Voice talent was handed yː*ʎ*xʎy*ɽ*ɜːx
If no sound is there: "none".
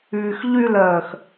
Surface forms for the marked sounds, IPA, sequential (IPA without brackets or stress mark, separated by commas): none, l